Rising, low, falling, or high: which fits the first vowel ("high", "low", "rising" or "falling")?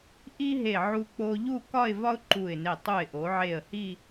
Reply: high